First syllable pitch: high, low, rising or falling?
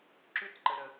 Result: high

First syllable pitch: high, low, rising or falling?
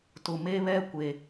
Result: low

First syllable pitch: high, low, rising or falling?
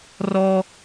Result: high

